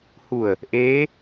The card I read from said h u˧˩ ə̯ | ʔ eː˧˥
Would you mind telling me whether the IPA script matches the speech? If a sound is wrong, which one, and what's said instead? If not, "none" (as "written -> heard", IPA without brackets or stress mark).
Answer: none